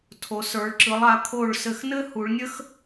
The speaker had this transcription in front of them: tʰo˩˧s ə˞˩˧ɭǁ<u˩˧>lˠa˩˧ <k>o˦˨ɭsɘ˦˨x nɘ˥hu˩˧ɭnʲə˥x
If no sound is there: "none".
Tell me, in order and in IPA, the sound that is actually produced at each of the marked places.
ɯ˩˧, kʰ

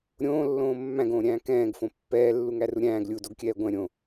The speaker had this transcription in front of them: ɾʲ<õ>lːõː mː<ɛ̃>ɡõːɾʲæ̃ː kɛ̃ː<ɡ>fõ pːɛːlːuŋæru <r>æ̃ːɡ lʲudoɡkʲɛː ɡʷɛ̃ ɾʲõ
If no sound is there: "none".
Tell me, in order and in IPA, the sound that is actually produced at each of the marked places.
õː, æ̃, ɡ, ɾʲ

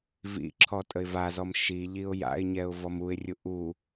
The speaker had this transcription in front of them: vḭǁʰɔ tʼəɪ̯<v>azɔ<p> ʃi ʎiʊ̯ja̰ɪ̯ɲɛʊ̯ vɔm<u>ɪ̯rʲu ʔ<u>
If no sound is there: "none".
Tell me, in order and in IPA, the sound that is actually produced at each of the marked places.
v, m, u, u

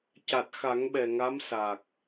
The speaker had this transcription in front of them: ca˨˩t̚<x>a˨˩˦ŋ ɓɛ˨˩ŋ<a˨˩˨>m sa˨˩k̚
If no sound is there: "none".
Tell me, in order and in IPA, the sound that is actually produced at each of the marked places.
x, a˧˥

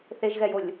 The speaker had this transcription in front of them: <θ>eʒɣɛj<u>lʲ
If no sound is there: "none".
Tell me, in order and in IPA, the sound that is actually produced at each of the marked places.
θ, o

